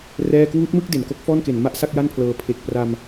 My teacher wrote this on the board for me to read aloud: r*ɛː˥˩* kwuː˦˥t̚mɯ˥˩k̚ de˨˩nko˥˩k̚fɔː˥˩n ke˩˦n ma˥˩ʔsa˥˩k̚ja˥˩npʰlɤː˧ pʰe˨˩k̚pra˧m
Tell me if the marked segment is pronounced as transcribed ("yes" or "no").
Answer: yes